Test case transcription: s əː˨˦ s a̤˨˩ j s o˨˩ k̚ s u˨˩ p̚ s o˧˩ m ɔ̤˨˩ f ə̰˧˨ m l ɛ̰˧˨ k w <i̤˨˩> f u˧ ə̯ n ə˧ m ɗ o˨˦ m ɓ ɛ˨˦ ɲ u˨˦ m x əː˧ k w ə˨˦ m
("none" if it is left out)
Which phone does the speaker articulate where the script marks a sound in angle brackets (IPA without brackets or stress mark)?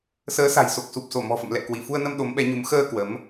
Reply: i˧˩